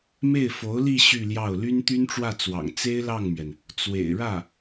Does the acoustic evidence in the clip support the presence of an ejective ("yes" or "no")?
no